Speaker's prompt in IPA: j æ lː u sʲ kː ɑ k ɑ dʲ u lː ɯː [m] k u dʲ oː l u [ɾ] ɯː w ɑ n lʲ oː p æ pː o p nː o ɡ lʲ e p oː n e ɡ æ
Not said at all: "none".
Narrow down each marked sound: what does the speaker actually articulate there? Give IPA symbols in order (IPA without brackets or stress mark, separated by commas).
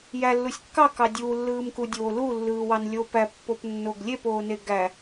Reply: m, lː